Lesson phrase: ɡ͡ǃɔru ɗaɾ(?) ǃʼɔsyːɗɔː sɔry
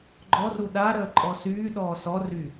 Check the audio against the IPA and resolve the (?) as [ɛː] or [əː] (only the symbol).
əː